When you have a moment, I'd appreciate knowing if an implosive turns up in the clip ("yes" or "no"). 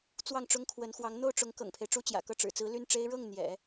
no